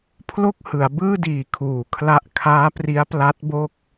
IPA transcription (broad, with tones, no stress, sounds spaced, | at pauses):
pʰ l o˥˩ k̚ h ɯ˩˦ a̯ b ɯː˥˩ d iː˨˩ kʰ uː˨˩ kʰ l a˥˩ ʔ kʰ aː˦˥ p r i˦˥ a̯ p l a˦˥ t̚ b o˥˩ k̚